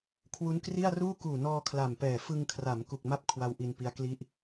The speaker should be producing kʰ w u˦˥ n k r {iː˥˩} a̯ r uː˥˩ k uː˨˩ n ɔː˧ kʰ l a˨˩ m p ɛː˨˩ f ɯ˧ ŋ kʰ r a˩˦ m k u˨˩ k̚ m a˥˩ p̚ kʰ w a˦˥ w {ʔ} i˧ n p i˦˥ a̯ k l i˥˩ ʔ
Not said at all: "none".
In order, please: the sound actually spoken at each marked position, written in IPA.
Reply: i˥˩, ʔ

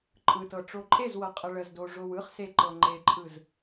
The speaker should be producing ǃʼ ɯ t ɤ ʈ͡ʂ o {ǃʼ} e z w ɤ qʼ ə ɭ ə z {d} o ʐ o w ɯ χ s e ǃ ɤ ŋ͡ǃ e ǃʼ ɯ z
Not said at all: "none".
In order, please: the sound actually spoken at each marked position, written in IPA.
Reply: ǃʼ, d

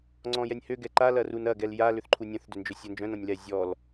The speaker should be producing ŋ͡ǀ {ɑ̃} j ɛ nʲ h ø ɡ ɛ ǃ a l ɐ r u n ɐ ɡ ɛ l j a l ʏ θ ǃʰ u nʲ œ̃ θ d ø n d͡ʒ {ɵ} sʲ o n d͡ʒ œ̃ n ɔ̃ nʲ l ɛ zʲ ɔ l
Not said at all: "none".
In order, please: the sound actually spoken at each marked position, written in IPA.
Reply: ɔ̃, ø

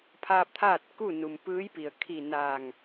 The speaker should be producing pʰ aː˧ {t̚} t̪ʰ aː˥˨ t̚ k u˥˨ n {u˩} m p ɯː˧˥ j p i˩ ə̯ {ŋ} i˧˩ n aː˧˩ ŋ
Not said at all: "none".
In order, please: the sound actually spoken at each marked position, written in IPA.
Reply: p̚, u˩, kʰ

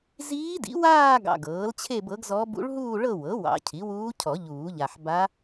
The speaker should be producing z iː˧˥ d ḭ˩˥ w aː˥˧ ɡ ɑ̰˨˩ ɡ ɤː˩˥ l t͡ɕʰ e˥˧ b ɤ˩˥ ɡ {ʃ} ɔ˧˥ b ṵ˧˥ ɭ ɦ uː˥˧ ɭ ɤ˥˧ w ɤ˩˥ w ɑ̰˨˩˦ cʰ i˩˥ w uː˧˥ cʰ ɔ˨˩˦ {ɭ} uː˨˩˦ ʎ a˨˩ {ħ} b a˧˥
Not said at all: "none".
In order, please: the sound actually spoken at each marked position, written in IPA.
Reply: z, ʎ, ħ

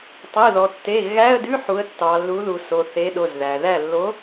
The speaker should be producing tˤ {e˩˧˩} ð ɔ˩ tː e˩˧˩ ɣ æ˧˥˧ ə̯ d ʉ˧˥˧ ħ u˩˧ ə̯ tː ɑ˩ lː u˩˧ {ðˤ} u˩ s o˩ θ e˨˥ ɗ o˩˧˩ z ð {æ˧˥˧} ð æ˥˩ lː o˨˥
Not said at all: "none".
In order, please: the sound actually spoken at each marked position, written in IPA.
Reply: e˩˧˩, ð, æ˩

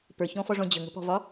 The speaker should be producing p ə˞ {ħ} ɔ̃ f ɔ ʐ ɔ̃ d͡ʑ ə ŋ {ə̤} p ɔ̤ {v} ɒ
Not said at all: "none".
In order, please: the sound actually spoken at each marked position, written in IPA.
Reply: ç, ə̤, v

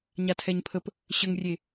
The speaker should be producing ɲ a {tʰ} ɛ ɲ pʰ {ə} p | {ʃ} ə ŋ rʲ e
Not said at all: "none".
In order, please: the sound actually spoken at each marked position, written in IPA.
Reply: tʰ, ə, ɕ

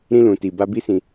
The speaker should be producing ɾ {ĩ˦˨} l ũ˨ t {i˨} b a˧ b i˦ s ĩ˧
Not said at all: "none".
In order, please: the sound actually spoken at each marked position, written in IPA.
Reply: ĩ˧, i˨

